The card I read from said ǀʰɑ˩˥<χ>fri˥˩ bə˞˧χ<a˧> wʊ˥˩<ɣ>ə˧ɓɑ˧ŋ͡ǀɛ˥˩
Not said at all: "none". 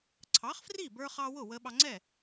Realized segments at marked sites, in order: χ, ɑ˧, w

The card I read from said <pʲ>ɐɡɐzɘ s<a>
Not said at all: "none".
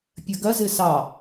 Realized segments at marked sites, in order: pʲ, ɑ

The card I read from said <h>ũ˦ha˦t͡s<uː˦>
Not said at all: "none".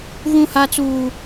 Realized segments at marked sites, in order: ɣ, uː˦

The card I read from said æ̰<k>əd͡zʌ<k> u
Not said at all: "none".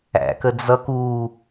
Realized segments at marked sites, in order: k, k

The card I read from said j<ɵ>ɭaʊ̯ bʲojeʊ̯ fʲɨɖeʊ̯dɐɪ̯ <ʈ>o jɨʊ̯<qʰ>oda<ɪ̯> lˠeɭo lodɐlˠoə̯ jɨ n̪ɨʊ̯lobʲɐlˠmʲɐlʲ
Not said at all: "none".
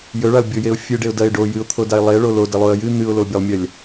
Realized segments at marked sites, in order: ɵ, ɖ, t̪ʰ, ɪ̯

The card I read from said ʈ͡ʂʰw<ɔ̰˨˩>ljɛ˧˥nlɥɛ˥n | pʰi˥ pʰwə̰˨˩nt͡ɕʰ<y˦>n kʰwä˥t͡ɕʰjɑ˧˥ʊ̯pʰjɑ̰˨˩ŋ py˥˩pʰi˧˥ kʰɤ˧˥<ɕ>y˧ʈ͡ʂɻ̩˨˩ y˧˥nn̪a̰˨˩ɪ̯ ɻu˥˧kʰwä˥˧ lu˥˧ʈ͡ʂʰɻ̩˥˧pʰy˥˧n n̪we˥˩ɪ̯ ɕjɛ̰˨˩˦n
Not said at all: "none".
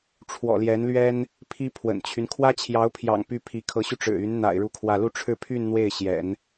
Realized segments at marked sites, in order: ɔ̰˨˩, y˦, ɕ

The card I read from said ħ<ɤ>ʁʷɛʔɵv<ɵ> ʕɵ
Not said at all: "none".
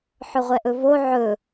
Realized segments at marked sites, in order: ɵ, o

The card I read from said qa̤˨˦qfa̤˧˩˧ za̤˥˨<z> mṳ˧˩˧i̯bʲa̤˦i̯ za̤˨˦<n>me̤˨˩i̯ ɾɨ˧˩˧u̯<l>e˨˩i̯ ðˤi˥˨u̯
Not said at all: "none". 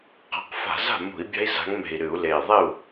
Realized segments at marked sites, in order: none, ŋ, l

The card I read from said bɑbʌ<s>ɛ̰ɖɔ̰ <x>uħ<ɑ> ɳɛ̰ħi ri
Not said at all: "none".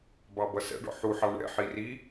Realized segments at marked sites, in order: s, ħ, ɑ

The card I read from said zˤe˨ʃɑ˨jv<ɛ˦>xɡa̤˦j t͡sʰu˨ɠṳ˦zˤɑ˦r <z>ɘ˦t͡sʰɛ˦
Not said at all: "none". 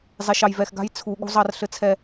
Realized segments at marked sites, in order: ɛ˨, ɬ

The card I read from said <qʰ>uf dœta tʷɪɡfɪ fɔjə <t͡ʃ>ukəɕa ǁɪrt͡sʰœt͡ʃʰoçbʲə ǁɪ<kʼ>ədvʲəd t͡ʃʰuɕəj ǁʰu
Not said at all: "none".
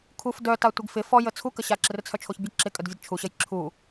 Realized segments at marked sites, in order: kʰ, t͡sʰ, kʼ

